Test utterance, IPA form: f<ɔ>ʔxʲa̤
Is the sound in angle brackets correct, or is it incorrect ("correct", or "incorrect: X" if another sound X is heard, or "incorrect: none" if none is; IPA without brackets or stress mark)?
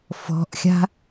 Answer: incorrect: ɔ̤